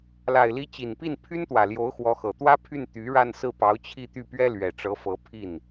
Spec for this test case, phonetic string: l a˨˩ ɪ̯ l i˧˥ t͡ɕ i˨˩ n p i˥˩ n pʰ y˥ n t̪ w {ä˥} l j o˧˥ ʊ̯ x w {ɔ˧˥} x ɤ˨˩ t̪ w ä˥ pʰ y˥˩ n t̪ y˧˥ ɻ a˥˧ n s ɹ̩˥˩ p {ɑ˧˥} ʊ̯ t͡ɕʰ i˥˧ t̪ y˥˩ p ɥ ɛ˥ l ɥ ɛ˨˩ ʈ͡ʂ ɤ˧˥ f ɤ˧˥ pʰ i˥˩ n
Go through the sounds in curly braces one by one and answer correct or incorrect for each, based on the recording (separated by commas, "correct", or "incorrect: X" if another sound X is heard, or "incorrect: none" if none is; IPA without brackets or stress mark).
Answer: incorrect: ä˨˩, correct, correct